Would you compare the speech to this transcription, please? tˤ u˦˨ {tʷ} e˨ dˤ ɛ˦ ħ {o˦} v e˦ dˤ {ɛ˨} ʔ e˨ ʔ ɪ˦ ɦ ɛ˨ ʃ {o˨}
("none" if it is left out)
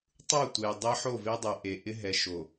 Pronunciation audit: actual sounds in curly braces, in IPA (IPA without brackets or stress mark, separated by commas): tʷ, o˦˨, ɛ˨, o˨